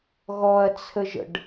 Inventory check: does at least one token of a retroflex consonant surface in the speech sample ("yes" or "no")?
yes